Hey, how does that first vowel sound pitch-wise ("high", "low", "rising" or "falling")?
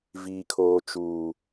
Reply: high